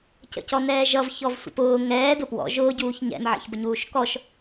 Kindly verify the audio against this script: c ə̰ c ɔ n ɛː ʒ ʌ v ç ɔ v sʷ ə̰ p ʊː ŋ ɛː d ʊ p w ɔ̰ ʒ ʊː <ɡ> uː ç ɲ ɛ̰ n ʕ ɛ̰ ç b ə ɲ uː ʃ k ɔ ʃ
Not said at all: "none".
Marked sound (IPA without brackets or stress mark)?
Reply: ɟ